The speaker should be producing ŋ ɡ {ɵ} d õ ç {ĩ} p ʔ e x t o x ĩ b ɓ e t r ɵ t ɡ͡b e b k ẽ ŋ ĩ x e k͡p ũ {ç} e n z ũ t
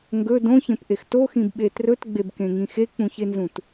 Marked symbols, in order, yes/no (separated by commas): yes, no, yes